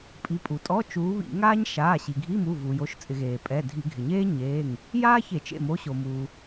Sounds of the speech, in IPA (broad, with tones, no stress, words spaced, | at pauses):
pʼi˩˧˩pʼu˩tʼɔ˧˥˧ t͡ʃuː˨˦βḭ˧˩˧ ŋaː˥ɲ ʃaː˩˧˩ɕi˩ ɡʱi˧˥˧ mu˩˧˩vuː˩jo˩˧˩ʃ t͡sʼɪ˧˩˧ɣeː˩ pʼɛ˩˧˩ dʱi˧˩˧ɡʱɪ˩ ɲeː˥ɲeː˩˧˩ŋ | jaː˥çe˧˩˧t͡ʃḛ˩˧˩mo˨˦ ɕo˩muː˩